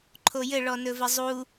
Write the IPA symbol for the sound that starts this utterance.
ǃʰ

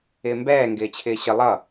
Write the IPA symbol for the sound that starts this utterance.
ɪː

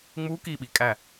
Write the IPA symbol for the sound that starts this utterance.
ŋ͡m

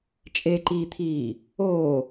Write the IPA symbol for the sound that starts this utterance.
t͡ʃʼ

